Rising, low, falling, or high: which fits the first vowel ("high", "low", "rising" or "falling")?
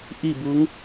falling